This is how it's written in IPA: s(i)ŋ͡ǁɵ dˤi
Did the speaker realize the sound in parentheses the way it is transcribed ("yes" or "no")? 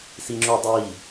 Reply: yes